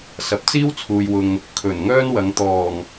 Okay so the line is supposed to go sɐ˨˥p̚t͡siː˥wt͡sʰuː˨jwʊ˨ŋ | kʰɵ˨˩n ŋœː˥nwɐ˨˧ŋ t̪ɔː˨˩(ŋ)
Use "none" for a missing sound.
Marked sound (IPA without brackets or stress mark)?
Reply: ŋ